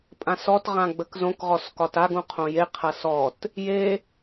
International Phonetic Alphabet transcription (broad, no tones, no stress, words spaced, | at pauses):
pʼãsɔtʁã ɡ͡bəkzõkʁɔs kɒtaɡũ qʰõjeqʰɐ sɔt | je